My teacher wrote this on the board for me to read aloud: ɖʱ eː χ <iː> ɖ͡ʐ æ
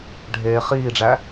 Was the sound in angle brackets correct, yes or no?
yes